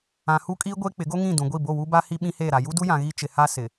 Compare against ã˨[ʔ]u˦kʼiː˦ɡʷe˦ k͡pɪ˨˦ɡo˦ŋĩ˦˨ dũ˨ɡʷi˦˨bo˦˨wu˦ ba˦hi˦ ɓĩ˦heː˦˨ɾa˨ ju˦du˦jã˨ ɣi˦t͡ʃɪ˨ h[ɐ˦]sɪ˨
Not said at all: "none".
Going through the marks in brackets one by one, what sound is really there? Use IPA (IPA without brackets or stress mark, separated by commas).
h, a˦